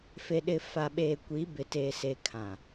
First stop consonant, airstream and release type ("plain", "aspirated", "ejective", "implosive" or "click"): implosive